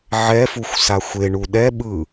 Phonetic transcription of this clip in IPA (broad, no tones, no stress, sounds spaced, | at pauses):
ʕ ɛ f u xʷ s a xʷ e ɳ u ɗ ɛ ɓ ɯ